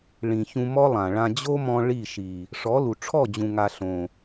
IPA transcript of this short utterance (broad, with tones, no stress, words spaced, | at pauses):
ɭĩ˨çũ˧ mɔ˦lˠã˨ ɭã˧ d͡ʑo˦mɔ̃˧ ɭi˦˨ʃi˨ | ʂɔ˨˦lu˨ ʈ͡ʂʰɔ˦˨d͡ʑũ˨ ŋa˧ ɬõ˨